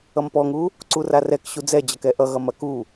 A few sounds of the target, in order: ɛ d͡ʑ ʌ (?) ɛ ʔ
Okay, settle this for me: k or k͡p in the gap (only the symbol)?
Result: k